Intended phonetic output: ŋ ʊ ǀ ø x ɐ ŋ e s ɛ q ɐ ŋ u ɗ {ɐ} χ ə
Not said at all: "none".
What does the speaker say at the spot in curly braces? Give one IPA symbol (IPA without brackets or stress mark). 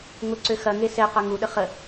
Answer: ə